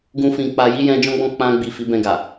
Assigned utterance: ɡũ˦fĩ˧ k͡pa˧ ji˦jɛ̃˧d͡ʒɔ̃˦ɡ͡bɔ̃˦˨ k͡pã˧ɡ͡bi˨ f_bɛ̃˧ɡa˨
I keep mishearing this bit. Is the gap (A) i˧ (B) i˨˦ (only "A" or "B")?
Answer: B